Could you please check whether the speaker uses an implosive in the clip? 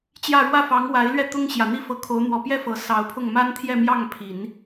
no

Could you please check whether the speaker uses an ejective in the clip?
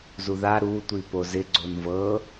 no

